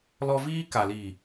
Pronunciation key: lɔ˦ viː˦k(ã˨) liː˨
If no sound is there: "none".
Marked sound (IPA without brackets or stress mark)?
a˨